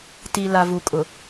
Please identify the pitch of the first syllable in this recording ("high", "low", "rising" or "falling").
low